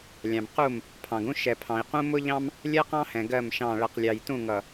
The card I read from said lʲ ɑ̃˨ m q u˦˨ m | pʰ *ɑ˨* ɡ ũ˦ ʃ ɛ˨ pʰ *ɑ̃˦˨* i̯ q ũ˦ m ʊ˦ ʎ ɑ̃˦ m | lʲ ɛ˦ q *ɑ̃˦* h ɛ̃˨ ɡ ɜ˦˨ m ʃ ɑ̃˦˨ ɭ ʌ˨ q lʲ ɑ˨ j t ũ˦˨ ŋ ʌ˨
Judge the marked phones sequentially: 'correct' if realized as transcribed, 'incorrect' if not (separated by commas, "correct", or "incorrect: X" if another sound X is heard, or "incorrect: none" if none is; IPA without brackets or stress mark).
incorrect: ɑ̃˨, incorrect: ɑ̃˨, correct